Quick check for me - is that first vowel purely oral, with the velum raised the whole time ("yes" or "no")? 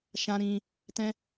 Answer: no